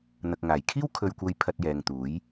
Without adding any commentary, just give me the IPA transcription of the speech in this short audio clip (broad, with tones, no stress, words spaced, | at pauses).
n̪ɐ˨k̚ŋaː˨˩j kʰiː˥w kʰɵ˧ɥkʷɐ˧j pʰɐ˧t̚jɛː˨ŋ t̪uː˨˥j